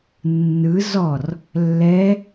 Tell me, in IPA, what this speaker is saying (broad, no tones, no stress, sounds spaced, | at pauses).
nː ɯ z ɔ r | lː ɛ